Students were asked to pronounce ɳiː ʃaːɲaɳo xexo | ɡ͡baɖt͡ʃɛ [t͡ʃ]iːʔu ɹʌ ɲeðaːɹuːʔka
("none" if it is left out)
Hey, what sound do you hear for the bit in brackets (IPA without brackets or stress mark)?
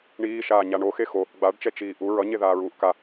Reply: t͡ʃ